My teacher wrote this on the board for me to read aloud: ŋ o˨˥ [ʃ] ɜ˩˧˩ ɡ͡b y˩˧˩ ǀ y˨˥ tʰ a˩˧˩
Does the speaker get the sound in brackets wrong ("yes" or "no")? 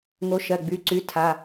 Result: no